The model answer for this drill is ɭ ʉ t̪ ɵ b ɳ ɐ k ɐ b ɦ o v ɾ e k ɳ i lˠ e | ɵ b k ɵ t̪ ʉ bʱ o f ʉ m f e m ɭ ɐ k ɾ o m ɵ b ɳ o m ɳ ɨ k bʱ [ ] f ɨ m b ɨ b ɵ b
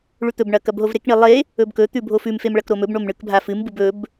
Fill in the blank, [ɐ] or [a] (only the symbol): a